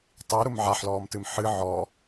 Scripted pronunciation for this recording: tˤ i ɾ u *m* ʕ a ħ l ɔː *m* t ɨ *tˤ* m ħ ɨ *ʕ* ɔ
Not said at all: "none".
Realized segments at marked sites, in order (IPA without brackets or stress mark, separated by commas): m, m, none, ʕ